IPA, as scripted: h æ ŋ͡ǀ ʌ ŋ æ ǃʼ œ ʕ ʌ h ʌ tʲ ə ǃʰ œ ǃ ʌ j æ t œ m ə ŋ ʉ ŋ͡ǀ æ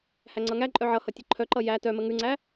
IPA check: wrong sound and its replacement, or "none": none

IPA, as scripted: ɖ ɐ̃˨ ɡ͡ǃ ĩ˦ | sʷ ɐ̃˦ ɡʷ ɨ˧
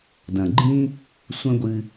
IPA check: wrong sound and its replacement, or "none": ɖ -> d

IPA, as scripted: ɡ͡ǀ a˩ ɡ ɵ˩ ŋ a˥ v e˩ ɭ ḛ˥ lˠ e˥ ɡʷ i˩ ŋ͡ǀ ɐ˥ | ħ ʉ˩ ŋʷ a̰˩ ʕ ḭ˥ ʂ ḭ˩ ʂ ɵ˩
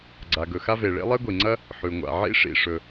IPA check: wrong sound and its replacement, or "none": ŋ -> x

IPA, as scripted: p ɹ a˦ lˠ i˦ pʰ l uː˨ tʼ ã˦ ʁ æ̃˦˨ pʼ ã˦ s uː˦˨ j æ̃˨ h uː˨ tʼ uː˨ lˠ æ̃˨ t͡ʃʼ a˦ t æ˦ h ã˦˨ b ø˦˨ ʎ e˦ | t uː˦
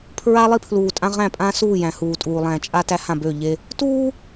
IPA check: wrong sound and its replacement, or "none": p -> pʰ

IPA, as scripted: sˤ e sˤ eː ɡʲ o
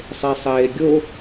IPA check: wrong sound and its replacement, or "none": none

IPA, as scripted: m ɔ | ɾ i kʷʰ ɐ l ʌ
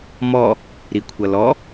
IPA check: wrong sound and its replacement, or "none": ʌ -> ɔ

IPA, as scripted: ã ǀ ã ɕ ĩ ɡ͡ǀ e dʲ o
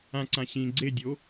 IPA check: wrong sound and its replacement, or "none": none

